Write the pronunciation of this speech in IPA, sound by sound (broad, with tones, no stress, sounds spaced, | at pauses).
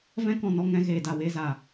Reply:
v ɛ̃˦ k ɔ̃˨ n ɔ˧ ŋ ɛ̃˧ ɣ eː˨ d a˨ w eː˧ z a˨